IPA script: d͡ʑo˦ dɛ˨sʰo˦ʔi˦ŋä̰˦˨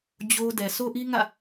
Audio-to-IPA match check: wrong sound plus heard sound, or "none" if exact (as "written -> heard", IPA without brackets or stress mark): none